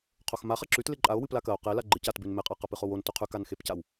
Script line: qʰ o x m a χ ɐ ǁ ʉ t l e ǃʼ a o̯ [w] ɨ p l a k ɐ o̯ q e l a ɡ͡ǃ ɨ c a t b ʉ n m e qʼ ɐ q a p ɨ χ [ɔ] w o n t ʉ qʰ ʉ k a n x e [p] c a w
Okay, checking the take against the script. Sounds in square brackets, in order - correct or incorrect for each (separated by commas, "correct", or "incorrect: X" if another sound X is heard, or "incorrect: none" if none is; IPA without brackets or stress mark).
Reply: correct, incorrect: o, correct